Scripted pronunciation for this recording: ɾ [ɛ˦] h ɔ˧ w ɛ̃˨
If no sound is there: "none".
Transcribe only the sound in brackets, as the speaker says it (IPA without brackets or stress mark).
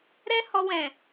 ɛ˦